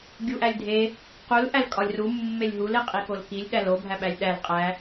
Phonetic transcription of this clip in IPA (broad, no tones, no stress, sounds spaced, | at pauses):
ɡʲ u ʔ æ lʲ dʱ e | q u l ʔ æ l kʼ ɒ lʲ r u mː e lʲ ɦ u l e qʼ i k o l k i lʲ ɗ æ l o bʱ æ ɓ æ lʲ ɗ æ l qʼ æ